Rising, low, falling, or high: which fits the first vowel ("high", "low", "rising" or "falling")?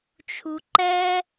low